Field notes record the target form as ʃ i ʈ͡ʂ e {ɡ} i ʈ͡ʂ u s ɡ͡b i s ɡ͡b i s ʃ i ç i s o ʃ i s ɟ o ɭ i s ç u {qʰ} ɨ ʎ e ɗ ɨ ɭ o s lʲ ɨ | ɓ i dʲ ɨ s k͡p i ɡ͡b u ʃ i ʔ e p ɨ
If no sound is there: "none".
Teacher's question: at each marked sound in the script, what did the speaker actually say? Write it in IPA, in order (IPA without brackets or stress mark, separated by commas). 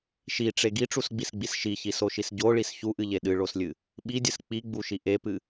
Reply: ɡ, ʔ